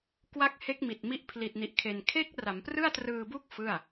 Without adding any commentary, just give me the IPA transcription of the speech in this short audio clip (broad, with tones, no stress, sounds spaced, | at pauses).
k w a˦˥ k̚ h e˦˥ k̚ m i˨˩ t̚ m i˦˥ ʔ pʰ l i˨˩ t̚ n i˨˩ ʔ kʰ e˨˩ n kʰ e˦˥ k̚ r a˩˦ m p r ɯ˥˩ a̯ t r ɯː˧ b u˥˩ k̚ f ɯ˥˩ a̯